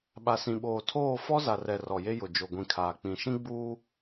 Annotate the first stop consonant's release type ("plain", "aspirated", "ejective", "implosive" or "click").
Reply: implosive